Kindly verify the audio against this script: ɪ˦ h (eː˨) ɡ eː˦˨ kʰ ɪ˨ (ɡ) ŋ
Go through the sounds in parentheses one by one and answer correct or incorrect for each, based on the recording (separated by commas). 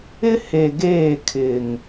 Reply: incorrect, incorrect